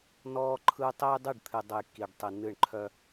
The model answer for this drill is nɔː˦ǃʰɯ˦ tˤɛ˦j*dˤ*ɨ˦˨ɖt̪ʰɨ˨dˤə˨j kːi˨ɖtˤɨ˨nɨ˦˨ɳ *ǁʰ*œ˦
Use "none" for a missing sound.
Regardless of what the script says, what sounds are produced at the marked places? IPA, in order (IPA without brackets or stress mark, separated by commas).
dˤ, ǃʰ